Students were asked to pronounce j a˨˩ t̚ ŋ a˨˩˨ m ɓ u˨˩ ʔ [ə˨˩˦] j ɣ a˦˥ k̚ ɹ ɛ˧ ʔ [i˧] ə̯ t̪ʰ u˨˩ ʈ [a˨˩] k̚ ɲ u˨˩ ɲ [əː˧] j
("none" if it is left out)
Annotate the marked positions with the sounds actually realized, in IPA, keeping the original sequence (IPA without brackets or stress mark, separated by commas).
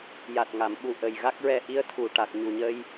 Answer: ə˨˩, i˧˥, a˨˩, ə˧